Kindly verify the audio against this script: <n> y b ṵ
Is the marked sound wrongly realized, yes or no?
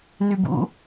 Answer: no